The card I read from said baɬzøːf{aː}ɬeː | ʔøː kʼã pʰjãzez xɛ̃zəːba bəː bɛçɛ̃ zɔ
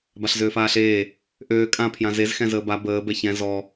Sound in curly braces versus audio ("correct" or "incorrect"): correct